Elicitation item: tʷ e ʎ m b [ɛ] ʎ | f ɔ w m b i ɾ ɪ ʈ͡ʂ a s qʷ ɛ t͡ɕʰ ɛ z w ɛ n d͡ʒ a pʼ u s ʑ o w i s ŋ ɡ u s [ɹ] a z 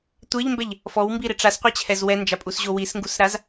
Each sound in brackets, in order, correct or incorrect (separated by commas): correct, incorrect